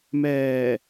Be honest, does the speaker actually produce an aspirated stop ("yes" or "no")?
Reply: no